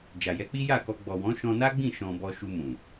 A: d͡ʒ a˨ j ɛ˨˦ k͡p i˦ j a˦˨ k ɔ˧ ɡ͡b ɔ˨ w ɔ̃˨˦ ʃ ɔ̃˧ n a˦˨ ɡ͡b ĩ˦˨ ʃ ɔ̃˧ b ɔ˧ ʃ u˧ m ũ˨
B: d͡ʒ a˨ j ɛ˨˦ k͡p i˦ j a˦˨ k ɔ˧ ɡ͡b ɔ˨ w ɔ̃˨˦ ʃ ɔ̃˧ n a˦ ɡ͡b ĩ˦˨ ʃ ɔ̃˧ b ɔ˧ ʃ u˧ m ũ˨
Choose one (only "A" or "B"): B